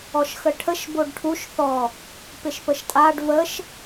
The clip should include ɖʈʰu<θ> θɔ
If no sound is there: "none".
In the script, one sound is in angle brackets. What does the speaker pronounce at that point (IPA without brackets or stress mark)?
ʃ